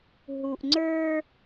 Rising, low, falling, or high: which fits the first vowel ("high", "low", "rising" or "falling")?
low